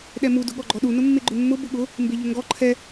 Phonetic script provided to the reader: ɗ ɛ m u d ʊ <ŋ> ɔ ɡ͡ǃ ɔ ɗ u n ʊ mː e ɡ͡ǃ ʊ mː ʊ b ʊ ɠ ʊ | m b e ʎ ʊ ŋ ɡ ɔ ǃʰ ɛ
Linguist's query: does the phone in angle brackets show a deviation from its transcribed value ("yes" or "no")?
yes